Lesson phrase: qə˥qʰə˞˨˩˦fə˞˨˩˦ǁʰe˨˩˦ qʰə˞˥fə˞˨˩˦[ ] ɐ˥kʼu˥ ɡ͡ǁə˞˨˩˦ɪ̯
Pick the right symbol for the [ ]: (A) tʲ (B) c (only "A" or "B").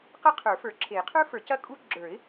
B